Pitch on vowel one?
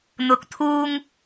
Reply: low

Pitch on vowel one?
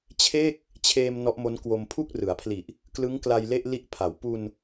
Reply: falling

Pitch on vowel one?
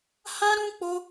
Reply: high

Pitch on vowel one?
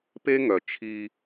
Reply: high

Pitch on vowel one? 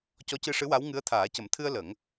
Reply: rising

